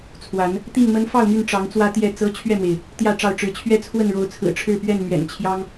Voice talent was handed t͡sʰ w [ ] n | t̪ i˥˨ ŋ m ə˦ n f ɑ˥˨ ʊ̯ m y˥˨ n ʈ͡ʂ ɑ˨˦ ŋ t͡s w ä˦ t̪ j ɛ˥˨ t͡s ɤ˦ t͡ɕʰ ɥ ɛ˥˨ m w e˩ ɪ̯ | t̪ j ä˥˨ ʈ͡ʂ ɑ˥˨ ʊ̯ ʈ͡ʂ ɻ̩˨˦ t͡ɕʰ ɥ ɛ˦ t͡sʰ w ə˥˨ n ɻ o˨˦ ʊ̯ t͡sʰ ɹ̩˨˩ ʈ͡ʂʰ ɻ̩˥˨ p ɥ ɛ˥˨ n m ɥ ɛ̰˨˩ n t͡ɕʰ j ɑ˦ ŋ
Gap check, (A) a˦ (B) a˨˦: B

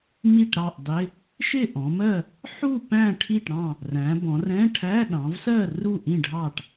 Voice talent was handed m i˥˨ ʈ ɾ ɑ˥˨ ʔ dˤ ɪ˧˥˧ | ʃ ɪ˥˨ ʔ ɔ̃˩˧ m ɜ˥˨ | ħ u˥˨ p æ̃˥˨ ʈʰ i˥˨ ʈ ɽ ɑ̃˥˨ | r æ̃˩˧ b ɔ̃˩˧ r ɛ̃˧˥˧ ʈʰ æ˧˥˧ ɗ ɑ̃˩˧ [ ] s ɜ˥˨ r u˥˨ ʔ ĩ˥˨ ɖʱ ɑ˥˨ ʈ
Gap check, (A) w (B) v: B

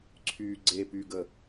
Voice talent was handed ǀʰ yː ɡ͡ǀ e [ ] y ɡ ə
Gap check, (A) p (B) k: A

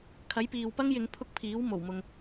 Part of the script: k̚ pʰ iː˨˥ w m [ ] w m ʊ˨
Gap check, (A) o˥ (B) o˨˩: B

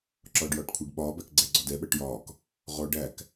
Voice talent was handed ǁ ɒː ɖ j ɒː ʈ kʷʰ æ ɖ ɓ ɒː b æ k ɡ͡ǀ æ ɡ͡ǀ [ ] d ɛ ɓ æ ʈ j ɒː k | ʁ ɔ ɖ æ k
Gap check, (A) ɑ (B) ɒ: B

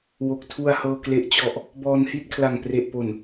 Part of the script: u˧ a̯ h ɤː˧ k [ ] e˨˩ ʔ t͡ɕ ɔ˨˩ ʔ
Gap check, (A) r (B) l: B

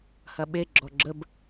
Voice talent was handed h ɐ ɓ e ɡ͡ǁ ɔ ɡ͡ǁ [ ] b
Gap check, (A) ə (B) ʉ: A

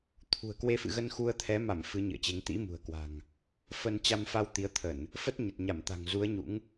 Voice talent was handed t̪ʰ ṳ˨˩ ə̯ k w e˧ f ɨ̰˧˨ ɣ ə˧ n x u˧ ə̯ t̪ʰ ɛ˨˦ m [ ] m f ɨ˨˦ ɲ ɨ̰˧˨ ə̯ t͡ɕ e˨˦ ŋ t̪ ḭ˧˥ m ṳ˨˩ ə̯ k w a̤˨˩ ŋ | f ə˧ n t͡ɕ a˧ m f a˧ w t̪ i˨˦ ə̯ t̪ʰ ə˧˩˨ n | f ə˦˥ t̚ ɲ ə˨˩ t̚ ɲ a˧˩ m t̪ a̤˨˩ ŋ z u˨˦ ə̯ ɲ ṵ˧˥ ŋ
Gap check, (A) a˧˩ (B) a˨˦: A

